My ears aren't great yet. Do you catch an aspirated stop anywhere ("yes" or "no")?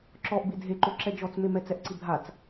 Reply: no